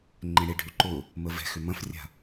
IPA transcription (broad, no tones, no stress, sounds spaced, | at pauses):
ŋ͡ǃ ẽ ɽ e ɖʱ y ǃ ʊ | m ə v ɛ̤ x ʏ m ɐ̃ f rʲ a̤